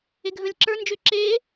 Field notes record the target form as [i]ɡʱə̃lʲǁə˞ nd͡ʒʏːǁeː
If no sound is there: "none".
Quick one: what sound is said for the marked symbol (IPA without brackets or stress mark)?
e